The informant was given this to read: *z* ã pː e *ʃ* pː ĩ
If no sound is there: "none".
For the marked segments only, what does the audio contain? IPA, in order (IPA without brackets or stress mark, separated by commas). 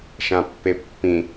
ʃ, none